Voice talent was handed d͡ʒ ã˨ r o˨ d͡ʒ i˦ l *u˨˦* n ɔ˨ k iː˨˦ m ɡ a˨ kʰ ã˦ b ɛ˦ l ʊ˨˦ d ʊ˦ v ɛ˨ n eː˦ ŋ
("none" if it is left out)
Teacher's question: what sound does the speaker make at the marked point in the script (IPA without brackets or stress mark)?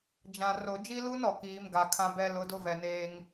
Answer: u˦